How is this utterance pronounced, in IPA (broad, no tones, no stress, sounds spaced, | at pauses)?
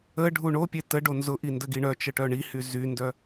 ə ɖʱ u ɳ o pʲ e t ə ɖ o n z ʊ ʔ i n d ə ɡ i ɳ œ t͡ʃ ə ʈ œ ɳ i h y z y n d œ